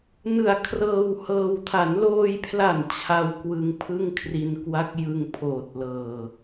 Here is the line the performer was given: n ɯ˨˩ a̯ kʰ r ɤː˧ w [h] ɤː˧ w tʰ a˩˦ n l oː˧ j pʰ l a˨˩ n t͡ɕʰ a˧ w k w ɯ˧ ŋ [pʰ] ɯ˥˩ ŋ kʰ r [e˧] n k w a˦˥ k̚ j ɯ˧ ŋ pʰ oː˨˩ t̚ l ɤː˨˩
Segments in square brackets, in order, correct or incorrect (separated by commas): correct, correct, incorrect